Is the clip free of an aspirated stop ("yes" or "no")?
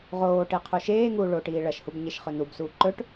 no